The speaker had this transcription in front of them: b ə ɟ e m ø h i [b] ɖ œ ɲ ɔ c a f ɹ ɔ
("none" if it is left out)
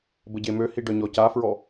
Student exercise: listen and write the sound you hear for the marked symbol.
none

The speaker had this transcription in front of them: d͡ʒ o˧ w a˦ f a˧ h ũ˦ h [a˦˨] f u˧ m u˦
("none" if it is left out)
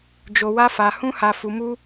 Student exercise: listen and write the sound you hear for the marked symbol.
a˧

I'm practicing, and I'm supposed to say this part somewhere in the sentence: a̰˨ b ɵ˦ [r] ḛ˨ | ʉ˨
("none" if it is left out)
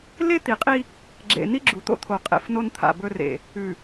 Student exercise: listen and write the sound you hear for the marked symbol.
r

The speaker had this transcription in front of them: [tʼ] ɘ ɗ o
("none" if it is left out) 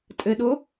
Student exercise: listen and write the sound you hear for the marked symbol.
tʼ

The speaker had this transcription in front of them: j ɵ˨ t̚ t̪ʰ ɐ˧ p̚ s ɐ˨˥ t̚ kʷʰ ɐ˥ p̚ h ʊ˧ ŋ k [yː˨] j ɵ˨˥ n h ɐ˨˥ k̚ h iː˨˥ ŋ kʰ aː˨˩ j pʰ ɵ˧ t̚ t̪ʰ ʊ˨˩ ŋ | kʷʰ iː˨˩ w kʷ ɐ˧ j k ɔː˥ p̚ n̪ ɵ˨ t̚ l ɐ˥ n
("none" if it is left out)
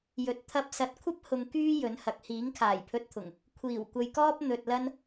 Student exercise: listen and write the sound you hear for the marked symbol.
yː˥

